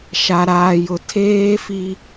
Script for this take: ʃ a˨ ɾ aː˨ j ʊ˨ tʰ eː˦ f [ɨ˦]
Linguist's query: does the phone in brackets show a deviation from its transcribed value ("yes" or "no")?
yes